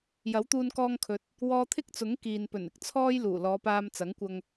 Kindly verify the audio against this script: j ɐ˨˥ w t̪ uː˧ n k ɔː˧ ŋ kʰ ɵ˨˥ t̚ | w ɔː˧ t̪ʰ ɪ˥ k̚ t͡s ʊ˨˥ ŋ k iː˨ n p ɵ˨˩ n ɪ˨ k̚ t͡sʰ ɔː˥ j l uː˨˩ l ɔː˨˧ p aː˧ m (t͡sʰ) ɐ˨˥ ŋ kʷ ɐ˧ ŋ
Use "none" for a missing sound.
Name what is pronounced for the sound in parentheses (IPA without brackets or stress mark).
t͡s